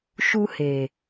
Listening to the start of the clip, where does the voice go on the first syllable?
high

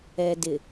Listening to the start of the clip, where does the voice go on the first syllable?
low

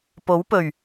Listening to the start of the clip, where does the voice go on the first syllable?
rising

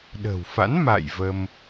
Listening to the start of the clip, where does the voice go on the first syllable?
low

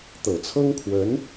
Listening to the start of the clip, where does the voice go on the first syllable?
low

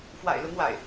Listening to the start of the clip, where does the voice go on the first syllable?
low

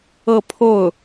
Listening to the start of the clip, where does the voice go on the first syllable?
falling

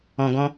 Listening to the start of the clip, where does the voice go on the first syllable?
low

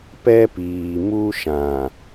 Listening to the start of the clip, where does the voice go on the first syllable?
high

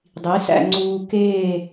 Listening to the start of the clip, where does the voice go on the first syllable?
rising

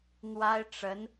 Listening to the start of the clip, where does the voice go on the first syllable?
high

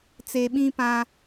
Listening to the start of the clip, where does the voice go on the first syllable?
low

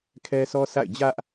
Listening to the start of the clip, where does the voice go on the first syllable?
high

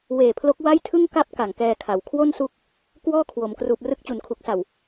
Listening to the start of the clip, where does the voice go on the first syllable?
low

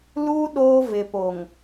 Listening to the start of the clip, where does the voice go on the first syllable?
high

